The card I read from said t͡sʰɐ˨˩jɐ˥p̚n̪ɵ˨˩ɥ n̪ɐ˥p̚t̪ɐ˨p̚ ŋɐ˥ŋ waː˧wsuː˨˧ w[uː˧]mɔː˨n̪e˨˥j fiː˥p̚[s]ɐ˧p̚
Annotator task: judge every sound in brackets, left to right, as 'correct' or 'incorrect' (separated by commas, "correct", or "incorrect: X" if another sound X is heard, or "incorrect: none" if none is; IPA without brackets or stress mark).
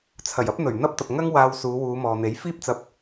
incorrect: uː˨˧, incorrect: t͡s